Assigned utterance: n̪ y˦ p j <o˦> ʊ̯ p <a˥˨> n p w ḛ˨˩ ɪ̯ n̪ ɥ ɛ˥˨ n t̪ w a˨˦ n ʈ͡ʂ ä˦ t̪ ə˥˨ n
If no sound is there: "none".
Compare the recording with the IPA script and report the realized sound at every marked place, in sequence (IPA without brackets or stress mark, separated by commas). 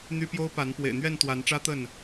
o˦, a˨˦